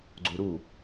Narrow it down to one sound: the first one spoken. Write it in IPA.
ɡ͡ǀ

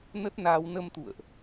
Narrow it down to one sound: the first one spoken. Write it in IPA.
n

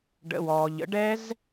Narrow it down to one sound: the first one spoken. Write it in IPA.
ɖ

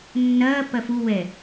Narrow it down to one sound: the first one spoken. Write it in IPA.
nː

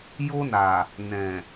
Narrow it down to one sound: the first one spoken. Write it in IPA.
j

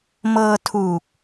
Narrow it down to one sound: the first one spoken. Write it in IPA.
m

